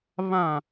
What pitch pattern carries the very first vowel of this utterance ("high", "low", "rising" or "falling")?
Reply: low